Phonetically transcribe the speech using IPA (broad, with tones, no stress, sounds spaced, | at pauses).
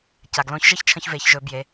c a˩ ɡ l õ˧˥ ç ʒ ə˥ ç t͡ʃʰ ə̃˧ ç v e˩˧ ç ʒ ɵ˩˧ b j e˩˧